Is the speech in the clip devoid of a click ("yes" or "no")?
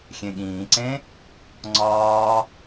no